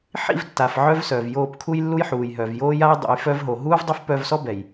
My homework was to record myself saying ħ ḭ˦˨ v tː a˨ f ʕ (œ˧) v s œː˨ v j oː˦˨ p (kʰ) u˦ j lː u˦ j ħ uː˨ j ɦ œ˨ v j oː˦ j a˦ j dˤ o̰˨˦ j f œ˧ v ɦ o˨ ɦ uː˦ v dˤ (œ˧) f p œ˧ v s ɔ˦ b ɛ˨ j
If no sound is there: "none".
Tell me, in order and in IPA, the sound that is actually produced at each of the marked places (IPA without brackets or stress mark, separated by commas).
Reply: œ˦, kʰ, œ˦